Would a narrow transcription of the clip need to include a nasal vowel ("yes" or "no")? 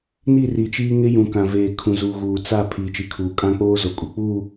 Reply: yes